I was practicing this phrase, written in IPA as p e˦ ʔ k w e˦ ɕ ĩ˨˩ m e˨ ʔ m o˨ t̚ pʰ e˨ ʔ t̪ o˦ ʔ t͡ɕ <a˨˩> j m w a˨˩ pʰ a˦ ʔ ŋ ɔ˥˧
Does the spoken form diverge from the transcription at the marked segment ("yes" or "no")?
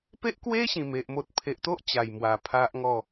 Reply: no